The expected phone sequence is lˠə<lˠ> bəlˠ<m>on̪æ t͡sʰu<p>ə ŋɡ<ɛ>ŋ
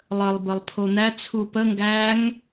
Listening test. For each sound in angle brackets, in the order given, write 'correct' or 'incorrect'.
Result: correct, incorrect, correct, incorrect

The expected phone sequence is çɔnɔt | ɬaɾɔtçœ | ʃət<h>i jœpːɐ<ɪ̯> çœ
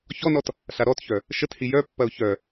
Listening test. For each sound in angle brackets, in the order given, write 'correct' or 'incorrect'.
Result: correct, incorrect

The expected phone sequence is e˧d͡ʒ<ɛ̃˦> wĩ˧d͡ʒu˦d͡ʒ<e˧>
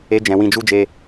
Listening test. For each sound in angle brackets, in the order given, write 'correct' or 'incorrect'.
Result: incorrect, correct

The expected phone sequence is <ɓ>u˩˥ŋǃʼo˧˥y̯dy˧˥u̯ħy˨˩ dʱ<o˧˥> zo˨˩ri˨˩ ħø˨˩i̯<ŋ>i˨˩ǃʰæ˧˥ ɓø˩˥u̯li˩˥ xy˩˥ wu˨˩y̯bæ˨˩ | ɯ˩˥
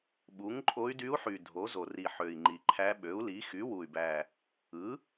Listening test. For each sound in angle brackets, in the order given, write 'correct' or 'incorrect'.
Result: correct, incorrect, incorrect

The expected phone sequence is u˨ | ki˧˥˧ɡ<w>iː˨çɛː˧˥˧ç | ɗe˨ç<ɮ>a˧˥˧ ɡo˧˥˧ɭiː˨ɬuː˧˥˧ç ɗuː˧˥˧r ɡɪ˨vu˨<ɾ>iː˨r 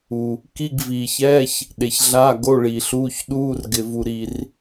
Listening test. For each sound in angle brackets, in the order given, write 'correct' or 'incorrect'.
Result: incorrect, correct, correct

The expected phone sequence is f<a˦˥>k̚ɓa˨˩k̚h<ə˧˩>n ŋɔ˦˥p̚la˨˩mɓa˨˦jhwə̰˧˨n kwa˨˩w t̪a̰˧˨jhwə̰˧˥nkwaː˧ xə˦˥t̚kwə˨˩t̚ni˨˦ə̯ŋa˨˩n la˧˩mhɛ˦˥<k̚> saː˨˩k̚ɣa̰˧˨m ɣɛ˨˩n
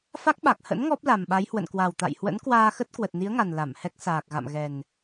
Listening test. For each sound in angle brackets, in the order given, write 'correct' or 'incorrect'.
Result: correct, incorrect, correct

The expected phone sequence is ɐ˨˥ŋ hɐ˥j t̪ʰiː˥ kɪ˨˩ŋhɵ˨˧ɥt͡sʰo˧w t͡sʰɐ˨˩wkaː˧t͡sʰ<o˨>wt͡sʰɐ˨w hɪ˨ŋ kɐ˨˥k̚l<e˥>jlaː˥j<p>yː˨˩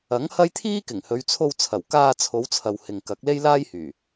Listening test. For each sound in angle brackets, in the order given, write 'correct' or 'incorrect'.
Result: incorrect, correct, incorrect

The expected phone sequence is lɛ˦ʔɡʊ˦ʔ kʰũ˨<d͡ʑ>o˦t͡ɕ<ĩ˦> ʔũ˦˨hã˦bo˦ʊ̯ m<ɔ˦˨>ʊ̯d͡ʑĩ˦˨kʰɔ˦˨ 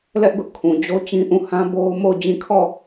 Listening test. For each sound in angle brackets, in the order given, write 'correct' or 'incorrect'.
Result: correct, correct, incorrect

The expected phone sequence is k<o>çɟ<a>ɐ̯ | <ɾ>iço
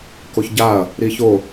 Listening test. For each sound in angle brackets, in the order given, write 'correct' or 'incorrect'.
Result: correct, correct, correct

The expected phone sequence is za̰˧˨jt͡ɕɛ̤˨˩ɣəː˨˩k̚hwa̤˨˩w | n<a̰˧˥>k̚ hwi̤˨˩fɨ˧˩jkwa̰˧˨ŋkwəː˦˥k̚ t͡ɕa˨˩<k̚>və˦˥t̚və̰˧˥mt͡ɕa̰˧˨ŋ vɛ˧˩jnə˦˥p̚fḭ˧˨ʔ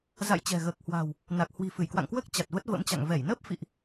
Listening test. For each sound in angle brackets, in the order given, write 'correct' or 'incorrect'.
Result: incorrect, incorrect

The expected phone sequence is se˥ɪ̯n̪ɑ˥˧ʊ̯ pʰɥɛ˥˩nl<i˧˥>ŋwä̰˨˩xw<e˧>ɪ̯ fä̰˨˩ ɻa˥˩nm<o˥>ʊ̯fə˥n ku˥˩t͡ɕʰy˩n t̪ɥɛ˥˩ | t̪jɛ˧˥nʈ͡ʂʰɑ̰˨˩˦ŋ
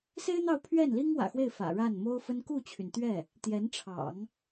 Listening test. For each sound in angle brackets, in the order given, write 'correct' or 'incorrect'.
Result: incorrect, incorrect, correct

